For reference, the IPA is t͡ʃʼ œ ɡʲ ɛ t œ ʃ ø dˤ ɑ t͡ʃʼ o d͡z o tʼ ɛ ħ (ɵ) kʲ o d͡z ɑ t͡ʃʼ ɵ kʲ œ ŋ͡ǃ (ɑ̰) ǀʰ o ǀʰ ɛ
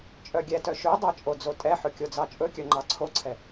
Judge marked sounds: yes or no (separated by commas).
yes, no